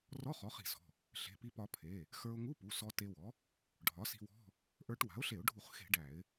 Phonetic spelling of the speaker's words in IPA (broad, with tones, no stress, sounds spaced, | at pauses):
r ɔ˧˥˧ χ ɔ˩˥ χ i̤˧˩˧ s ɔ̤˩˧˩ | ɬ e̤˩˧˩ p i˧ p ɒ˧ pʰ e˩˧˩ | x ə˞˧ ʊ̯ ŋ u˧˥˧ p u˩˧˩ s ɔ˧ t e˧ w ɔ˩˥ | ɖʱ ɒ˩˥ s i̤˧ w ɔ̤˧˥˧ | ʔ ə˞˧ ʈ w a̤˩˥ ʊ̯ ɬ e˧˩˧ ʊ̯ ɖʱ u˧˩˧ χ x e̤˧˩˧ ɖ æ˧˩˧ ɪ̯